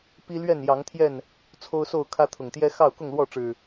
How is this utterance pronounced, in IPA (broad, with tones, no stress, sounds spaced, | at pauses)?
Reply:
p i˦ l ɥ ɛ˥˨ n j ɑ˨˦ ŋ t̪ʰ j ɛ˥˨ n | t͡sʰ o˦ ʊ̯ s o˥˨ ʊ̯ kʰ ä˦ t̪ʰ ʊ˨˩ ŋ t̪ j ɛ˦ x ɑ˥˨ ʊ̯ k ʊ˥˨ ŋ l w ɔ˥˨ ʈ͡ʂ ɻ̩˨˩